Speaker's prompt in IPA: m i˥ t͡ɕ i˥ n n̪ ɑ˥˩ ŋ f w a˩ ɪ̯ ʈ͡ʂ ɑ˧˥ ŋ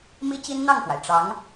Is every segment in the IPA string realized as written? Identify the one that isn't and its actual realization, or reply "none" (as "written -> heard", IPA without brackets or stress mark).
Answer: none